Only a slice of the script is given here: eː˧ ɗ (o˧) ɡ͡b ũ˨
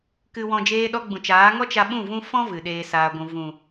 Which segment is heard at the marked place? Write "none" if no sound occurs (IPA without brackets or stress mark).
ɔ˧